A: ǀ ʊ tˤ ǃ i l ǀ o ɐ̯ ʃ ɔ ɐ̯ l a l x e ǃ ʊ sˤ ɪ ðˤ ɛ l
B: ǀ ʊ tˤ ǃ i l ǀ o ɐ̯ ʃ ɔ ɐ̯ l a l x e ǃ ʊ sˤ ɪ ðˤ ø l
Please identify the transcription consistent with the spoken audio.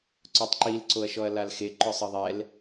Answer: A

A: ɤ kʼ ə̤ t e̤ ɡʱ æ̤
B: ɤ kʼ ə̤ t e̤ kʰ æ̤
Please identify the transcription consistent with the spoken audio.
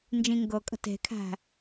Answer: B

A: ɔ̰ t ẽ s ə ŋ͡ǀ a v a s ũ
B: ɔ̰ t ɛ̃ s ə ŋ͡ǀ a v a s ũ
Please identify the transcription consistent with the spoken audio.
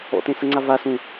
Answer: A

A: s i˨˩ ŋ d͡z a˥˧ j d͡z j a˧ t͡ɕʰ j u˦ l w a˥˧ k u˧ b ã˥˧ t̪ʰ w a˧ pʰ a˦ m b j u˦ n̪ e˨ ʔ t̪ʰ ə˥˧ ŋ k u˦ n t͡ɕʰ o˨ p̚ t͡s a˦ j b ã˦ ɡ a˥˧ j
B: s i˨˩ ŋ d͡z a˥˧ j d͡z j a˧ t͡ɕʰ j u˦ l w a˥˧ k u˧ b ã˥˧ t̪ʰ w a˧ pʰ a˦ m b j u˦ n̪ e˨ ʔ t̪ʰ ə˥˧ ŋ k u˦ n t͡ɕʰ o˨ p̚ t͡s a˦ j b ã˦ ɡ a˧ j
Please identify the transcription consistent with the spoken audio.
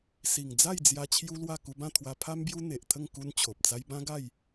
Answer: A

